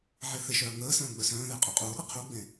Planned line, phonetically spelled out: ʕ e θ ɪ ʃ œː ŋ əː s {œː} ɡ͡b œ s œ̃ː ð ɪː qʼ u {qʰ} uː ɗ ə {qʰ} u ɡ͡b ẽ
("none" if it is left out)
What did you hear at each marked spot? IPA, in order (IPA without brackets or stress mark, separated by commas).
œ̃ː, qʼ, qʰ